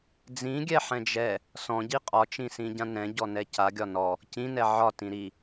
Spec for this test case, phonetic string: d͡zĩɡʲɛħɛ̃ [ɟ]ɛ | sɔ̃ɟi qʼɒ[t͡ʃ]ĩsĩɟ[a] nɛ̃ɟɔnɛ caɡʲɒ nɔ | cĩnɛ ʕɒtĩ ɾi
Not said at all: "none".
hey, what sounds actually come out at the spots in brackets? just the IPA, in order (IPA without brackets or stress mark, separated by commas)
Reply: d͡ʒ, t͡ʃ, ã